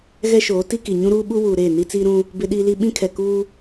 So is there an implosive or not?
yes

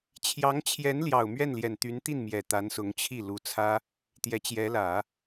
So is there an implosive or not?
no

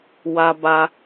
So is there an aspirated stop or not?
no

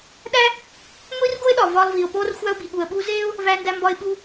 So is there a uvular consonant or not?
no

